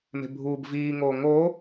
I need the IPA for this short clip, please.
m e̤ bʱ uː b v iː ŋ oː ŋ oː

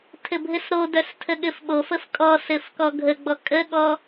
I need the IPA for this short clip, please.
tʰ ɘ bʱ ɘ s ɾ o d œ s tʰ ə ɠ ɘ f ɓ o f ə f kʼ ɔ s ɘ f k ɔ ɡʱ ə ɡ͡b ɔ kʼ ə ɠ ɔ

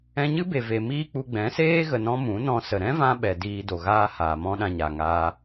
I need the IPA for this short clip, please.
ɛ̃˧ ɲ ɨ˦ b e˨ v e˨ m iː˦ k͡p u˧ ɡ͡b ɛ̃˨˦ s eː˦ ɣ ə˨ n ɔ̃˧ m ũ˨˦ n ɔ̃˧ s ə˨ ɾ ɛ̃˦ v ã˧ ɓ ɛ˨ d iː˧ d o˨ ɣ aː˦ h aː˨ m ɔ̃˦ ɗ ã˧ ɲ a˨ ŋ aː˧

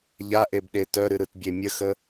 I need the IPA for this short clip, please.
ʎ a ʔ e b ɗ e t œ ɾ ɨ ɾ ɯ t bʲ e mʲ ə x ə

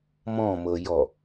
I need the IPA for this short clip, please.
m ɔ̃ m ɤ j ɔ

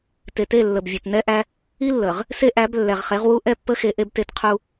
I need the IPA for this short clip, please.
t e˨ t e˦˨ lː ə˨ b vʲ e˨ t n ɛ˦ ʔ æ˦ | i˦ lː ə˨ ʁ | s e˦ ʔ æ˨˦ b lː ɛ˨ ʁ χ e˨˦ ʁ w u˦ ʔ ɛ˦ pː ə˦ x e˦ ʔ e˦ b t e˦ t qʰ u˦

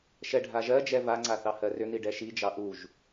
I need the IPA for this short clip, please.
ʃ ɛ ɖʱ a ʒ ɜ d͡ʒ ɛ v a ŋ͡ǀ a θ ɑ h ɜ r ʏ n̪ i ɖ ɛ ʃ i d͡ʒ ɑ ʔ u ʒ

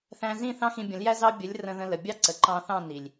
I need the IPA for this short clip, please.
θ æ̃˧ z ĩ˦˨ θ ɑ̃˦ x ĩ˧ bʲ ə̃˨˦ l j æ˦ z ɑ˦ bʲ ə˨˦ lʲ r ə̃˧ ð ə̃˧ l ə˨ bʲ ɑ˦ ǀ ə˨ ǃ ɑ̃˧ θ ɑ̃˦˨ n i˨ lʲ

